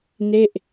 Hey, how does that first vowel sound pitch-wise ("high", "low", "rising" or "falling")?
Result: falling